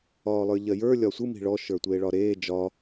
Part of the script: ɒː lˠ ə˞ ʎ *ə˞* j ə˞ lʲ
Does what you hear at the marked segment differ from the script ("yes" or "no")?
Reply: yes